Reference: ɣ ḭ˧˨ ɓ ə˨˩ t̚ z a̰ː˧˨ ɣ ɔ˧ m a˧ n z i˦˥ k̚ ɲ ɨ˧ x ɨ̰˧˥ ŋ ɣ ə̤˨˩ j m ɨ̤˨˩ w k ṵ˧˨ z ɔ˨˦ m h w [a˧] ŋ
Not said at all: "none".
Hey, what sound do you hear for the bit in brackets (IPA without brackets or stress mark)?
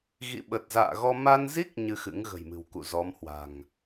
a̤˨˩